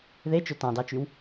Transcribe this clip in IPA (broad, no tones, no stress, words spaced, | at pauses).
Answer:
ðet͡ʃø tɑ̃dɑt͡ʃyw